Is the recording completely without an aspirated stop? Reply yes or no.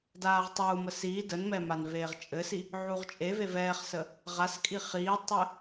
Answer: yes